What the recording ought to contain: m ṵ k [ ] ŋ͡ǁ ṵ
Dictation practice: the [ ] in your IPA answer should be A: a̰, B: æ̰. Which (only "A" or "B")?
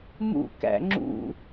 B